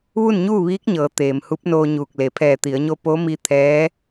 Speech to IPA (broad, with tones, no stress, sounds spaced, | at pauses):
ʋ u˥˨ n ɲ uː˥˨ ʋ iː˧˥ k̚ ɲ ɤː˩˧ t̪ eː˩ m h u˧˥ p̚ n oː˧ ɲ uː˧˩ k̚ l e˩ pʰ ɛː˧˩ t̪ i˩˧ ə̯ ɲ o˧ p o˧˥ m i˧ t̪ʰ ɛː˧˥